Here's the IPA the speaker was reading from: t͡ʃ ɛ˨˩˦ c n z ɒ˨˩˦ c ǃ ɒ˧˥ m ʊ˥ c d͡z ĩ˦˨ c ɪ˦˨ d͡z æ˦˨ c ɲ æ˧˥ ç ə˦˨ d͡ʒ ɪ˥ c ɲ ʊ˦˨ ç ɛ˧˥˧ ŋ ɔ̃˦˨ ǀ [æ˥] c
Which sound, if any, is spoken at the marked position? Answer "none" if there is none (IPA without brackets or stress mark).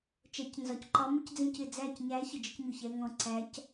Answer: æ˧˥